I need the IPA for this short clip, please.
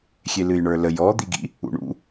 xʲ e l ɨ j ɳ ə˞ l ə j ɔ d̪ i ɡ ḭ | ṵ ɳ ṵ

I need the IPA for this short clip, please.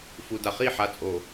f u˨ d a˨ χ i˦˨ ħ a˨ t͡sʼ o˨

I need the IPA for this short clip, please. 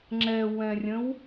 ŋ͡ǁ ɛ w ɛ̃ rʲ ə̃ w

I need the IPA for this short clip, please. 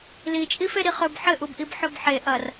l i t͡ʃʼ i f e ɾ i χ ɵ b ħ ɘ ʔ u b ʔ i b ħ ɵ b ħ e ʔ ɐ r

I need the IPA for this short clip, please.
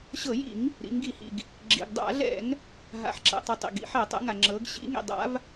ɕ ɤ˧˩˧ j ḭ˧˩˧ ŋ | ɾ ḭ˩˧ ŋ ɡ i˧˩˧ h ḭ˩ ɡ | ɡ͡ǁ ḭ˩ ɡ dˤ a̰˧˩˧ ɮ ɛ̰˧˩˧ ŋ | ɦ a̰˩ ħ ǁ ɛ̰˩ tˤ ɤ˩ tˤ ḭ˩ ɡ ḭ˩˧ ħ ɛ˧˩˧ tˤ ɛ̰˩˧ ŋ a˩ ŋ͡ǁ ɤ˩˧ ɡ ɕ ḭ˩˧ ŋ ḭ˩ dˤ a̰˩˧ v

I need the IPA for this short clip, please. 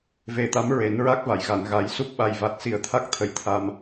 v e˨˩ t̪ a˧˥ m ɹ e˨˩˦ n ɹ a˦˥ k̚ v a˨˩˨ j ɣ a˨˩˨ n ɣ a˨˩˦ j s u˦˥ p̚ ɓ a˨˩ j v a˨˩ t̚ s i˨˩ ə̯ t̪ʰ a˦˥ k̚ t̪ʰ ə˧ j t̪ʰ a˧ m

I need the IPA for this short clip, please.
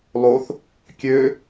lˠ o θ | kʲ ø

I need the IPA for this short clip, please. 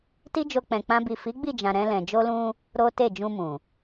t i˦ d͡ʒ o˧ k͡p ɛ̃˧ k͡p ã˦ b i˦˨ f i˨˦ ɡ͡b i˦˨ d͡ʒ ã˨ ɾ ɛ̃˧ l ɛ̃˨ d͡ʒ o˧ l ũ˧ | ɾ o˦ t e˦˨ d͡ʒ ũ˧ m ũ˨

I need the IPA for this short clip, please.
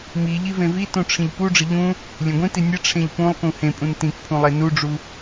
m i ʎ i v ẽ v i t ũ ʈ͡ʂʰ ĩ ʎ p u ɖ͡ʐ ɘ ʎ ũ | lʲ ẽ ɡʷ ĩ t i nʲ ɘ ʈ͡ʂʰ ẽ ʎ p ũ lˠ k ũ h ẽ pʼ ũ n t ĩ k pʰ ũ lˠ e n u ɖ͡ʐ u

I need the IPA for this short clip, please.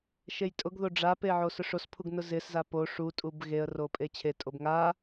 ʃ e j tʼ ʊ ɡ ð o ɖ͡ʐ a p e ʕ o s ʊ ʂ o s pʰ u ɡ n ʊ z ɪ s z a p o ʂ u tʼ u b ɣ e ə̯ r o pʼ e t͡ɕʰ e tʼ o b ŋ a

